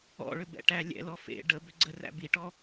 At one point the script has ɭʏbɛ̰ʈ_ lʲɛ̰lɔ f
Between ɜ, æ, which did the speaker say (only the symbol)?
æ